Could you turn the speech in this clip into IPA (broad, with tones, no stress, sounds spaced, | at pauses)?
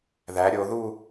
ð æ˩˧ ɾʲ o˩˧ ð u˥˧